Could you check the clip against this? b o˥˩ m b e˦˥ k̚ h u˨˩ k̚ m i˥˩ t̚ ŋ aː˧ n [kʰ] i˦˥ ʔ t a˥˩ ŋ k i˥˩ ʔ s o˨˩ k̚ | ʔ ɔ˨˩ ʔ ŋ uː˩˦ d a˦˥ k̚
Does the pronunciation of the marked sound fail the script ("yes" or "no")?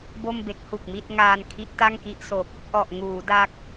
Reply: no